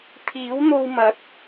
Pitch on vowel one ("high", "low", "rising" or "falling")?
rising